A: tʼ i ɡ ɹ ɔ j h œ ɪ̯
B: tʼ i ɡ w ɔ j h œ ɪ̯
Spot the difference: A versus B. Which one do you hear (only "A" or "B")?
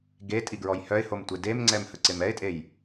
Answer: A